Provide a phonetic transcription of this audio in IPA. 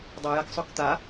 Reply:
dˤ ɐ j a k sˤ ɵ k t̪ a

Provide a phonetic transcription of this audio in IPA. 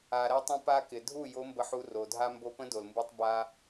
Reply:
a˩ ɾ æ˧ tˤ ə̃˧ p a˧ k ɪ˩ dʱ u˥˩ j o˧˥ m b ə˧ ħ u˧ r o˩ dʱ a˧ m b o˧ p ə̃˧˥ d o˩ l m b ɯ˧ tˤ b a˧

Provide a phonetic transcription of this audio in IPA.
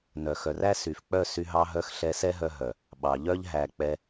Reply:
n œ˨ x œ˨ r æ˦ s y˨ f k͡p œ˦˨ s y˧ ɦ ɑ˧ ɦ œ˧ x ɬ ɛ˧ s ɛ˦ ɦ œ˧ ɦ œ˨ | ɓ ɑ˨ ʎ œ˦ ʎ ɦ æ˨ k͡p ɛ˧

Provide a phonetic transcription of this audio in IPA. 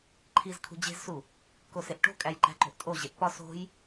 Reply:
ǃʰ i z kʰ ṳ d͡ʑ e̤ z s u | k o s e ʔ ʈ o̤ kʼ æ j ǃ æ̤ ǃ o̤ ʔ tʼ o ʑ e ʔ p ɒ s o̤ j

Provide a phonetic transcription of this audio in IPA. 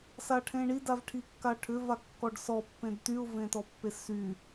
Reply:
s a ʈʰ ẽ ɳ i d a v ʈʰ i kː a ʈʰ ʏ v a kː ɔ ɖ s ɔ pː ẽ d t y ʊ̯ v ẽ t ɔ pː e s y

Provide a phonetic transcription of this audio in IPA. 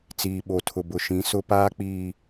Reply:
t͡s iː˨ ɓ o˨ tʰ ʊ˨ b ʊ˨ ʃ ĩ˨˦ s ʊ˦ p aː˦ k͡p iː˨

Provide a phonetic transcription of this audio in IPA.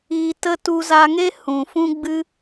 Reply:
iː˧ t ə˦ t u˧ z a˧ ŋ e˦ h ũ˨ f ũ˦ ɡ͡b ɨ˦

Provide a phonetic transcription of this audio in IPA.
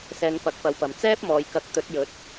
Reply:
s ɛː˧ ŋ p ɐ˨˥ k̚ p ɐ˨˥ w p ɐ˨ m t͡s ɛː˥ p̚ m ɔː˨ j k ɐ˨˥ k̚ t̪ ɵ˨˥ t̚ j ɵ˨˥ t̚

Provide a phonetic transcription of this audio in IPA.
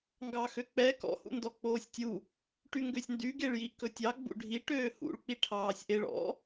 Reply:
ŋ ɡ ɑ x ø k͡p ɛ k ɔ̰ h ṵ n d ɔ k͡p oː sʲ tʲ u | ʈ y ŋ ɡ ø sʲ n d y ɡ e ɭ j i ʔ k ɵ tʲ ɑ ɡ͡b ṵ ɖʱ i ʈ øː h ṵ ɭ k͡p i ʈʰ ɑː sʲ ʔ e ɭ ɔ̰

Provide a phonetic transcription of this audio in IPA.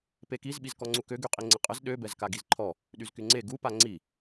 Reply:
p e k i z ɓ i z k ɔ ŋ͡ǀ u k ø ɡ y qʼ i ŋ͡ǀ ə qʼ ə z ɗ ø b ɛ z k a ɡ i z ǃʰ ɔ | ɗ y z k y ŋ͡ǀ e ɡ u p a ŋ͡ǀ i

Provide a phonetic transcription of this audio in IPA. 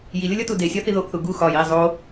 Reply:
j i lʲ o lʲ ɒ t u d e sʲ ɒ θ i ð o ʔ θ u ɡ u x ɒ j i zˤ o

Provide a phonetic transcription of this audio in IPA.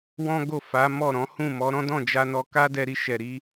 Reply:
w ɔ̃˦ ɡ o˦˨ f a˨˦ m ɔ˦˨ ɾ ɔ̃˨˦ h ũ˦˨ m ɔ˨˦ ɾ ɔ̃˦ d ɔ̃˦˨ d͡ʒ a˧ n ɔ˧ k a˦ d ɛ˧ ɾ i˧ ʃ ɛ˨ ɾ i˨˦

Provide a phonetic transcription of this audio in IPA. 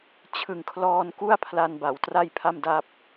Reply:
t͡ɕʰ ɯ˨˩ ŋ kʰ l ɔː˧ n k u˥˩ a̯ pʰ l a˧ n b a˩˦ w t r a˥˩ j pʰ a˥˩ m d a˥˩ p̚

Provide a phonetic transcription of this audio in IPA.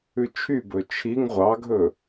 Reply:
ʉ t͡ʃʰ y b ɵ t͡ʃʰ i ŋ ʁʷ ɑ ɡʱ ɵ

